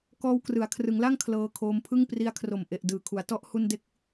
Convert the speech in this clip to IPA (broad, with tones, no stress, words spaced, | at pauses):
kɔː˧wkrɯ˩˦a̯ kʰrɯ˩˦ŋla˥˩ŋ kʰlɤː˧kʰoː˧mpʰɯ˥˩ŋ pri˧a̯kʰro˨˩m ʔe˨˩ʔ dɯː˨˩kʰu˩˦a̯ tɔ˥˩ʔ hu˥˩n de˦˥k̚